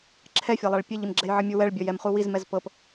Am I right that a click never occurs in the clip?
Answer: no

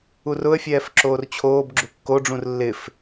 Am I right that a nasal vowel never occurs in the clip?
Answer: no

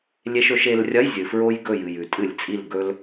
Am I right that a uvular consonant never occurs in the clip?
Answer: yes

